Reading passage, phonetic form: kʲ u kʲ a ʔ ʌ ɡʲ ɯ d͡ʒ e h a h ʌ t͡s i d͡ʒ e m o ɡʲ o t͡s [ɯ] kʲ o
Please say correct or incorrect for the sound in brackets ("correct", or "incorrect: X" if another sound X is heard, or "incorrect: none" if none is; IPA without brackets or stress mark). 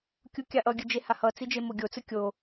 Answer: correct